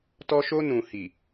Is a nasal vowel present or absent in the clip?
present